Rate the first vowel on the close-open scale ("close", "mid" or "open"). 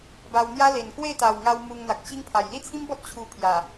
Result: open